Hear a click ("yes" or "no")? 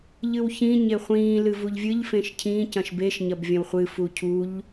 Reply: no